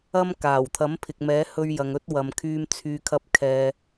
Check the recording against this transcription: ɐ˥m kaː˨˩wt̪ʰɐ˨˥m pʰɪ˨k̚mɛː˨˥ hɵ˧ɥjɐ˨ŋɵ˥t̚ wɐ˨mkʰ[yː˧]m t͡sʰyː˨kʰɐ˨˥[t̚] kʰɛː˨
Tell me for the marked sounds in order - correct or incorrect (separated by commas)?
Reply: correct, incorrect